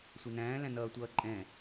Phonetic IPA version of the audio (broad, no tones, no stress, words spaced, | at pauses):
sʷɛnæ̃ːlæ̃nʌː tʷʌːǃʼɛ̃